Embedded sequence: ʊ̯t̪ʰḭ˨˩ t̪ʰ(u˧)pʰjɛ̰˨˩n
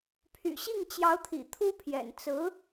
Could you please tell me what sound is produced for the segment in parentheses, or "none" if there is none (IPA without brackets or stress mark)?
u˥